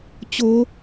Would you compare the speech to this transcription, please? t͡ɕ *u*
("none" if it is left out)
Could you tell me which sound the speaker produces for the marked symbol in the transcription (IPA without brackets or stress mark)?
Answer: o